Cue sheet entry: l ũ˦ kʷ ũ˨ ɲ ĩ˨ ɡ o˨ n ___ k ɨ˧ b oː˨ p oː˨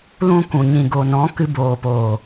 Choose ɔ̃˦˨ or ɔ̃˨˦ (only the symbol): ɔ̃˨˦